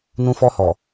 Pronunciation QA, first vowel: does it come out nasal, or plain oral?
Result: nasal